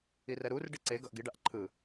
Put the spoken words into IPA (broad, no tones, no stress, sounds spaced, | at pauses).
i r ɛ ɾ u r ɖ i ǀ e ɡ ʌ ʔ ɡ i ɖ a ʔ ǃʰ ɯ